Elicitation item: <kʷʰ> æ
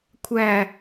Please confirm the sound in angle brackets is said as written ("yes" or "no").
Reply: yes